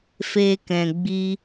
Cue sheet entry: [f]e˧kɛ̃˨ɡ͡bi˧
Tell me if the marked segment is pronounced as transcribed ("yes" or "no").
yes